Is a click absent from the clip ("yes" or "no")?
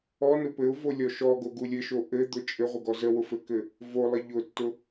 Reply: yes